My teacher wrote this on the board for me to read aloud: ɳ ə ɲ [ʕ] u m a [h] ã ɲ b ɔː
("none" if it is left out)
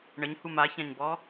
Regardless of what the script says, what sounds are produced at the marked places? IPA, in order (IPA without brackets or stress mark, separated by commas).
h, ç